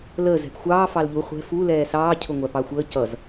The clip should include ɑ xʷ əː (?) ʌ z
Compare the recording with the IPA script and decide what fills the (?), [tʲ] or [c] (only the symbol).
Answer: c